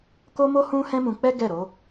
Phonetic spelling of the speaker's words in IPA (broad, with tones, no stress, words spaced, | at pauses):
ko˦mo˦ hũ˦ hɛ̃˦mũ˧k͡pɛ˦ ɡɛ˦˨ɾo˨˦